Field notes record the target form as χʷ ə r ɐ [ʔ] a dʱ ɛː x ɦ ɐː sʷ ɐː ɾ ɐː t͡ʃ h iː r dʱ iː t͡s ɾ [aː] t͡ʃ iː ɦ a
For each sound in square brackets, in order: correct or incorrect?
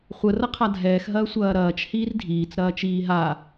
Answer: incorrect: qʰ, incorrect: ɐː

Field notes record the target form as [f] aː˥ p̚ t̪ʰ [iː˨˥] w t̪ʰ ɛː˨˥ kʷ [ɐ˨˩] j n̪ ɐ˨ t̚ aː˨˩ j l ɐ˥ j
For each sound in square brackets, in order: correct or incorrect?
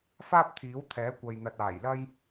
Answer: correct, correct, incorrect: ɐ˨

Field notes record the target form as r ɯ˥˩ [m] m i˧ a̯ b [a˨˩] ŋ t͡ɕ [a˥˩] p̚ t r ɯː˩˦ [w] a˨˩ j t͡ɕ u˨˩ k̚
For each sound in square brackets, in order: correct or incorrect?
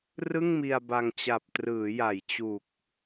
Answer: incorrect: ŋ, incorrect: a˧, incorrect: a˨˩, incorrect: j

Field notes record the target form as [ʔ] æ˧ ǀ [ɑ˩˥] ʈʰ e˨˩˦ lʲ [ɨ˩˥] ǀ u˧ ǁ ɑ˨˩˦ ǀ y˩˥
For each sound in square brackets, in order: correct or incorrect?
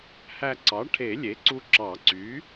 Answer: incorrect: h, correct, incorrect: e˩˥

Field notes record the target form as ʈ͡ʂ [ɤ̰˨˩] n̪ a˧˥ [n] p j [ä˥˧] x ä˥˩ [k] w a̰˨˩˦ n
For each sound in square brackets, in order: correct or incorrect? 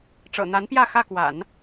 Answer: correct, correct, correct, correct

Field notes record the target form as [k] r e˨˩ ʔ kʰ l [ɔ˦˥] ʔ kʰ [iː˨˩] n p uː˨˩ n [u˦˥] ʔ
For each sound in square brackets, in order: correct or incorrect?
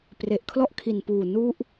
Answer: incorrect: p, correct, incorrect: i˨˩, correct

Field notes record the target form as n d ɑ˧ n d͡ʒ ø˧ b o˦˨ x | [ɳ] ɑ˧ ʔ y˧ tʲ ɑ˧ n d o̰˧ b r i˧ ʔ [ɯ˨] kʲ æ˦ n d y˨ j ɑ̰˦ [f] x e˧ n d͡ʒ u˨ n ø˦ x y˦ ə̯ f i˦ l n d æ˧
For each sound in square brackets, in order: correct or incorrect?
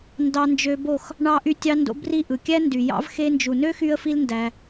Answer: correct, correct, incorrect: v

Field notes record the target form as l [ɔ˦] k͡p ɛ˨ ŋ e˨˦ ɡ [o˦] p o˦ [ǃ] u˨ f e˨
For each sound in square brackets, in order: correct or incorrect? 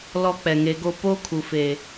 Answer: correct, correct, incorrect: kʰ

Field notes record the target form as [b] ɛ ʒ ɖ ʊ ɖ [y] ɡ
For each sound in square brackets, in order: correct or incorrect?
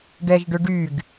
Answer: incorrect: ɖ, correct

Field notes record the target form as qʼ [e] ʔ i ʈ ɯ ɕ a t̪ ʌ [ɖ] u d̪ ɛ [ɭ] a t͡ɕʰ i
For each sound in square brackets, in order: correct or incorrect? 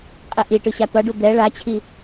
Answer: incorrect: i, correct, correct

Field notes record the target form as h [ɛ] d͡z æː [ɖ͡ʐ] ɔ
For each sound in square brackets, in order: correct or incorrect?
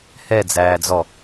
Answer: correct, incorrect: d͡z

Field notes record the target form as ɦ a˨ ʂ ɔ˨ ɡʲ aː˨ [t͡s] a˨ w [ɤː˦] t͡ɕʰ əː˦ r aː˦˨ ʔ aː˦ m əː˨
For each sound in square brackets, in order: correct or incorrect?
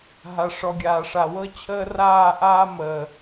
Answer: incorrect: ʂ, incorrect: ɤ˦

